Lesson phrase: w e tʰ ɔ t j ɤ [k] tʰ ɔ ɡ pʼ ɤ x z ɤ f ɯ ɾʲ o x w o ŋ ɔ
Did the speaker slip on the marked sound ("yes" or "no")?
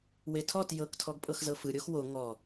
no